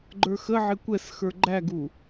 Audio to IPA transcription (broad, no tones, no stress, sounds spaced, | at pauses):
ɡ͡ǃ ə˞ x ə ʕ ɪ kʷ ɛ s x ə˞ ɡ͡ǃ æ ɡ u